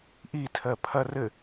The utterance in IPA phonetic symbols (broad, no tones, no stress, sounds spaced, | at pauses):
ʔ i tʰ ɜ pʰ ɐ r ɘ